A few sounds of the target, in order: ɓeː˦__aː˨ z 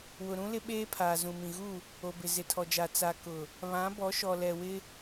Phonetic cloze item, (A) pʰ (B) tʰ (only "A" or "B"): A